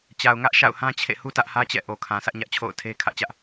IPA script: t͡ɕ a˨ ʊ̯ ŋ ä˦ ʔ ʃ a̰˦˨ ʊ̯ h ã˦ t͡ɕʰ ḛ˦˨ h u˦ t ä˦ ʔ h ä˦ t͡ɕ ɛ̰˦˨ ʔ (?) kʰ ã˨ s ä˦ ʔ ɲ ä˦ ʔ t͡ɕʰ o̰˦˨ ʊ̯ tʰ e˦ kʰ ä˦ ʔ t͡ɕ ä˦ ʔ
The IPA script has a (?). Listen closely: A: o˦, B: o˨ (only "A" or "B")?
B